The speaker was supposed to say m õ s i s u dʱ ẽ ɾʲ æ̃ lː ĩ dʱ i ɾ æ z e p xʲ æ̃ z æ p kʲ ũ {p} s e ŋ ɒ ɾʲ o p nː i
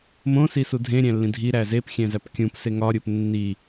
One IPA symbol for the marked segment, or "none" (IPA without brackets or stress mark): p